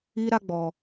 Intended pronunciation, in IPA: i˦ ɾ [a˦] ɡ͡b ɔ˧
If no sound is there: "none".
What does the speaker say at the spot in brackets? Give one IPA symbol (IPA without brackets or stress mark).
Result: a˦